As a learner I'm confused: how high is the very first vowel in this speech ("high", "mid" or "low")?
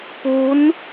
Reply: high